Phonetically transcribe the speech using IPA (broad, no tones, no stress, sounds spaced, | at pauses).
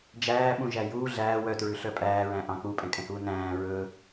d͡ʒ æː ɓ ũ ʒ æ j uː ɮ æː w œ t ɹ ʉ ɬ œ pʼ æː ɹ æ̃ ʔ ɑ̃ k͡p u pʼ ɛ̃ kʼ ɛ̃ h uː n æ̃ː ɹ ɵ